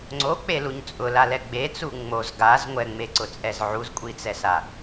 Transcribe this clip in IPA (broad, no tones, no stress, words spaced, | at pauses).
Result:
ŋ͡ǀok͡peluɲ t͡sʼʊlalɛ ɡ͡bet͡su ŋ͡moz ɡaz ŋʷɛŋ͡meǀʊt͡sʼɛz ʕuzkʷʼit͡sɛsa